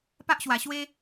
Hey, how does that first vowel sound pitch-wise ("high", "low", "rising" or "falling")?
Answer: high